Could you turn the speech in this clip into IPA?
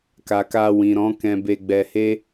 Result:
k a˨ k a˧ w ĩ˨ ɾ ɔ̃˨˦ k ɛ̃˧ b e˧ ɡ͡b ɛ˧ h e˦

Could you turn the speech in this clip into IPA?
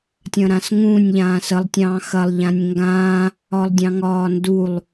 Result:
tʲ ɐ̃ ɾ ã s ŋ ũː nʲ ʎ ãː s ə lˠ tʲ ɑ̃ː x ɐ lˠ ʎ ã nʲ ŋ ɡ ãː | ɒ lˠ dʲ ɑ̃ ŋ ɒː n d u lˠ

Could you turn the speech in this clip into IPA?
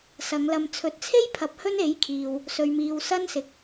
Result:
s ɐ˨˧ ŋ l ɐ˧ m t͡sʰ ɵ˨˥ t̚ t͡sʰ e˥ j pʰ ɐ˨˥ p̚ h ɵ˥ n e˨˥ j kʰ iː˨ w | s ɵ˨ ɥ m iː˨ w s ɐ˥ n s ɪ˨ k̚

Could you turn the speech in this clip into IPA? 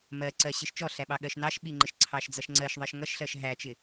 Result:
m ɜ ǀ ɜ ɕ ɪ ʃ t͡ʃ ɔ ɬ æ ɓ ɑ ɠ ɜ ʃ n ɑ ʃ ɓ i ŋ͡ǃ ɪ ʃ ǀʰ ɑ ʃ d͡z ʌ ʃ ŋ͡ǀ ɜ ʃ ðˤ ɜ ʃ ŋ ʌ ʃ ɬ ɜ ʃ ɦ æ t͡ʃ ɪ

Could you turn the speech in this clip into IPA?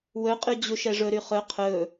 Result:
w ɵ qʼ y d͡ʑ u ʃ ɛ ʐ ɵ ɾ y χ ɵ qʰ ɵ

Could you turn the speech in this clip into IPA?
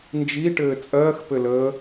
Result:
n d͡ʒ i ʈ ɘː t͡sʼ ɜː x p ɘ l əː

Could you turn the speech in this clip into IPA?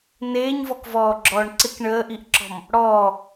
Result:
n eː ɲ v ɔ k v ɔː ɡ͡ǁ ɔː ɳ ǀ ɪ k ɳ əː ʔ i ʔ ǁ ɔ̤ m | ɽ ɔː

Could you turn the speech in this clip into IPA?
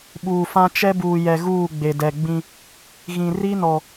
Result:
ɓ uː˨ f ã˦ t͡ʃ ɛ˦ b uː˨ j ɛ˨ ɣ uː˦˨ ɡ͡b e˨ d ɛ˨ ɡ͡b ĩ˦ | ɣ ĩ˨ r i˦ n ɔ˨

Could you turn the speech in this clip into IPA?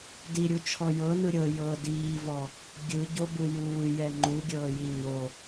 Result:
d i ɾʲ u t͡ʃʰ ɔ j ɤ n ɯ ɾʲ ɤ j ɤ d iː v ɔ | ɡʲ ɯ ɟ o b ɯ j uː j ɛ ŋ͡ǃ u ɡʲ ɤː j i ɲ o

